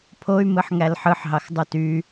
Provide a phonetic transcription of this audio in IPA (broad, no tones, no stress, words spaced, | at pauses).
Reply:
pʰoy̯mɯħŋæl ħɯħɦɑxdˤu ty